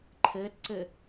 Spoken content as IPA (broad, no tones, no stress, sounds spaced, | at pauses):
ǃʰ ɘː t ǀ ɘ